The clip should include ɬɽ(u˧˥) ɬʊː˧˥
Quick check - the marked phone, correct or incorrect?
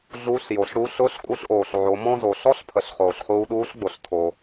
correct